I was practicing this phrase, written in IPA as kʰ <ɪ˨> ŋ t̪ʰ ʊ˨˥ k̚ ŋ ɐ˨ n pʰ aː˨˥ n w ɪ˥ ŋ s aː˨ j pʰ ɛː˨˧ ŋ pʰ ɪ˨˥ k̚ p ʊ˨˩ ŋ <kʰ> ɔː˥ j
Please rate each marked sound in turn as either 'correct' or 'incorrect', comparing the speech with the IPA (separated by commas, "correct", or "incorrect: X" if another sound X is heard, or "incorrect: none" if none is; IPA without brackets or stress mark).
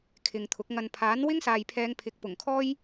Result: correct, correct